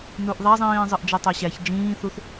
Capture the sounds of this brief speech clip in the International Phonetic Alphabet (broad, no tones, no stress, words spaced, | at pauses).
nuʔðˤæzˤĩː zˤɯʔd͡ʒetˤæɕæç d͡ʒĩːθuθ